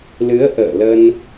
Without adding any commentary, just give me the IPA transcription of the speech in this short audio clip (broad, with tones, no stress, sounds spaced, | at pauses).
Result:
l ɨ˨˦ ə̯ ʔ ə̰ː˧˨ l ə˧ n